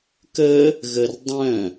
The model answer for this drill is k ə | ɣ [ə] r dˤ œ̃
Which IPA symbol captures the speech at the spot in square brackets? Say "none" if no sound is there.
ə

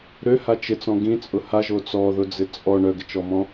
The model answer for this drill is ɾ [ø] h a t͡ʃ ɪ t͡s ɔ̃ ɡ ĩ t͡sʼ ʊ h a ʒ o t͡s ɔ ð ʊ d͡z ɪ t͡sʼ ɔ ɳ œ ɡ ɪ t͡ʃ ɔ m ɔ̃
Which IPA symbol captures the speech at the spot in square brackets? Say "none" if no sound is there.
ø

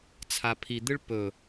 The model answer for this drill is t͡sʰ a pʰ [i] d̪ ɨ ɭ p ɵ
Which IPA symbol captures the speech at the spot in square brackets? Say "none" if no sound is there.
i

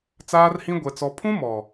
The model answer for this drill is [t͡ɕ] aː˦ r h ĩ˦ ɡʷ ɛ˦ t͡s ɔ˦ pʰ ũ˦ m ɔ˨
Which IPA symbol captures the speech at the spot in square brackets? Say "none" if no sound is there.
t͡s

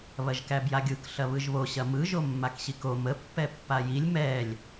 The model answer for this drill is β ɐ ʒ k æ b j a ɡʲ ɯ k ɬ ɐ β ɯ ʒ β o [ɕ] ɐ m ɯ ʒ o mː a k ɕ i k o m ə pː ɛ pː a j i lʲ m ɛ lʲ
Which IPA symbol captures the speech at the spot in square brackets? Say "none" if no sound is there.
ɕ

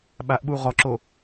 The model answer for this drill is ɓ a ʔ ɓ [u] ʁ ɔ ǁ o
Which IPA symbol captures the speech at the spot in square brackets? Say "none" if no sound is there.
u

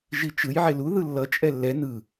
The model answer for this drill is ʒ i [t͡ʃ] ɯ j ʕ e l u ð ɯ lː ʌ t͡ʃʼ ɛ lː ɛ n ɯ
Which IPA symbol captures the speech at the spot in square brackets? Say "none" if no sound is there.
t͡ʃ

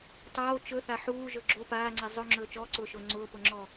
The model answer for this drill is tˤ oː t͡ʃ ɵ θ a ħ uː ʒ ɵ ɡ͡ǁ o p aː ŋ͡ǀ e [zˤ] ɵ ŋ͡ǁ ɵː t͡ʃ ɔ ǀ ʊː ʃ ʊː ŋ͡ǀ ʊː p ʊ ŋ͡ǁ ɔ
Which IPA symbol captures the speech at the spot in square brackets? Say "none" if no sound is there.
zˤ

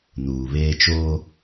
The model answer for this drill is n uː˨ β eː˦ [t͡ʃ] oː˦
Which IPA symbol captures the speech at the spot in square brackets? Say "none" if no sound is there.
t͡ʃ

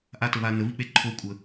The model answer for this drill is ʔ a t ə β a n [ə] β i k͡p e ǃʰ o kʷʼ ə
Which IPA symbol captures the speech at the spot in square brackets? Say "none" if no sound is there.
ə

